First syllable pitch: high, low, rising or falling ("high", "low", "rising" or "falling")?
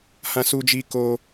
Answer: high